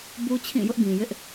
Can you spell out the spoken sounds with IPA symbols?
b u˦ t͡ɕʰ ĩ˦˨ j ʊ˦ ʔ ɡ ĩ˨ j ɪ˦ ʔ

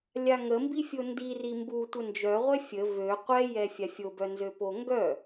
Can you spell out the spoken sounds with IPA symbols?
lʲ a ŋ ə m b i fʲ o n d i r i m b u tʷ ə n d͡ʒ œ ʁʷ ɛ fʲ ə v ø qʷ ɛ j ɛ fʲ a fʲ o b œ n z ø p o ŋ ɡ œ

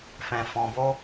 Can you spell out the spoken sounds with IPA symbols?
f ɛ̃˧ f ɔ̃˧ b o˦

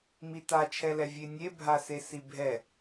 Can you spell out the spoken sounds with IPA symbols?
m i t a t͡ʃʰ ɛ l ɛ vʲ e nʲ e bʱ a s e s i bʱ ɛ

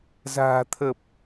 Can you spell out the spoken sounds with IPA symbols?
z a̤ː˨˩ t̪ʰ ə˨˩ p̚

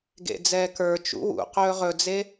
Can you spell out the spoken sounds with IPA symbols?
ɡ ḛ d͡z ɛː k ə˞ t͡ʃ ṵ w ṵ q ɵː ʁ ɵ d͡z e

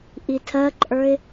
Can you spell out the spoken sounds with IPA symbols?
ʔ i tʰ ɜ ǃʼ ə˞ ɪ̯

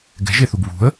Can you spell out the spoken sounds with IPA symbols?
ɡ ɛ̤ ʒ e θ u ɡ β ṳ ə̯

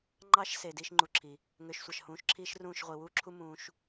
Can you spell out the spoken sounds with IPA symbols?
ŋ͡ǃ ɑ˧ ʃ s e˨ d iː˦ ʃ ŋ͡ǃ u˧ ǁʰ i˨ | ŋ ø˨˦ ʃ sʷ ɑ˨ ʃ h ũː˨˦ ʃ ǁʰ iː˦ ʃ r ũː˦˨ ʃ ʁʷ i˨ w uː˦ ǁʰ u˦ m ũː˧ ʃ

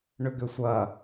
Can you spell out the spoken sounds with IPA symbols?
ɳ ʏ ɡ ʏ sʷ ɐ

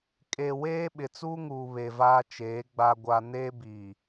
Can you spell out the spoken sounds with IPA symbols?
kʼ e˨ w eː˦ ɓ ɪ˨ t͡s uː˦ ŋ uː˨ β e˨ v aː˦ t͡ʃ eː˨˦ ɡ͡b a˦ ɡʷ a˦ n eː˦ b iː˨

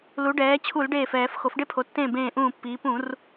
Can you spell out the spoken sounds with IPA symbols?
l u˩˧ ɖ ɛː˩˧ t͡ɕʰ u˧˩˧ l ɖ eː˧˩ f ɛː˧˩˧ f x o˩˧ f ɖ e˦ pʰ o˩˧ tː ẽː˧˩ b ẽː˧˩ ʔ ũː˧˩ pː iː˩˧ p ũ˧˩˧ r

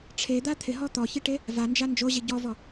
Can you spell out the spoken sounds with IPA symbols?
ʈ͡ʂʰ e d̪ a t̪ʰ ɪ ɦ ɔ t̪ ɔ ç i ʈ e | v a n d͡ʒ a n d͡ʒ o ʑ i ɟ ɔ v ɔ

